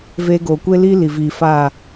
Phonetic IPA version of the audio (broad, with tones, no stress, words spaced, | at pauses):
veː˧ɡoː˨kʷe˦liː˦ li˨viː˨faː˦˨